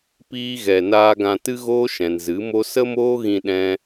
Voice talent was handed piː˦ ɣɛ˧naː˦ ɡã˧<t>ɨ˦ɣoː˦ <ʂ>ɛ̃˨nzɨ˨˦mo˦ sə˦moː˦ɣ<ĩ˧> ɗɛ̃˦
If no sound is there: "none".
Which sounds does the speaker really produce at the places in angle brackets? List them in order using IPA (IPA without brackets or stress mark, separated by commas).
t, ʃ, ĩ˧